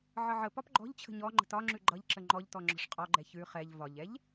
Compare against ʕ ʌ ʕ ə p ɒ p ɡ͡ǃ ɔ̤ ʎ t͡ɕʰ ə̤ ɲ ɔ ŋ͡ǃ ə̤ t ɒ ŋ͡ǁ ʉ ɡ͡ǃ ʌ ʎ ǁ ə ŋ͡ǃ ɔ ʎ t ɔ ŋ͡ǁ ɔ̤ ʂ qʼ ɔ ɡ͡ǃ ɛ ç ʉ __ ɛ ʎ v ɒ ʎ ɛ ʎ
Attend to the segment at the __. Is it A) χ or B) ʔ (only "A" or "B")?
A